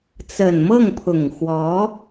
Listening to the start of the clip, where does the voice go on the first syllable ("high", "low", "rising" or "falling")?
low